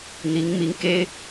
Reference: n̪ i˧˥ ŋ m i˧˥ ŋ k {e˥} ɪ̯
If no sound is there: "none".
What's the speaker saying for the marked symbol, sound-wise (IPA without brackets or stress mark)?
e˥